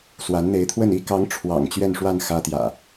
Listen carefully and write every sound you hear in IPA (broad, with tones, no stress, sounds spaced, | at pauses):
s w a˨˦ n n̪ e˨˦ ɪ̯ t̪ʰ w ə˥˨ n i˥˨ k ɑ˨˦ ŋ ʈ͡ʂʰ w ɑ̰˨˩ ŋ t͡ɕ ɥ ɛ˥˨ n ʂ w a˥˨ n x ä˦ t̪ j ä̰˨˩